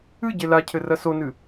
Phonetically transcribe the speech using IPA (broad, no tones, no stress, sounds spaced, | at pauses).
ɨ ɟ e l a cʰ ɘ r ɐ s o n ɨ